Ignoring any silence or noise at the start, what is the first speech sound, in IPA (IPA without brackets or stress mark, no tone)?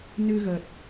n